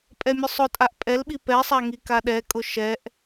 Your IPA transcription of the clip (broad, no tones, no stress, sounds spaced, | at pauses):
pʼ ɛ mʲ ʊ sˤ ʊ tʼ a ʔ pʼ ɛ l ɓ i p ɛ sˤ a ŋ i k a ɗ ɛ kʼ ʊ ʃ ɛ ʔ